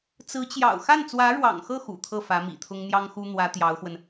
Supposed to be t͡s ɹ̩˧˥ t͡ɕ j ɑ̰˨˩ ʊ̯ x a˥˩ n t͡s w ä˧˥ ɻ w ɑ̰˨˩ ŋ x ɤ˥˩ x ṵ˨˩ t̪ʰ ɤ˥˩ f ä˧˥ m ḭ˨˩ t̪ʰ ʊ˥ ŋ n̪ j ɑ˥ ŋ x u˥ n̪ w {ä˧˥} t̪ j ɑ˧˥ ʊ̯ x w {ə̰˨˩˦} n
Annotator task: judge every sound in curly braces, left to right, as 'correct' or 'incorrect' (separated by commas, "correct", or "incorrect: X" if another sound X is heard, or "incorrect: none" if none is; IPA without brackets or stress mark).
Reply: correct, incorrect: ə˧